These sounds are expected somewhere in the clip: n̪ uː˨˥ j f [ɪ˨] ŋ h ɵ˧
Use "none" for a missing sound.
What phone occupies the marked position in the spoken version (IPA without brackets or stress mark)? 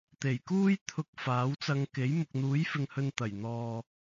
ɪ˨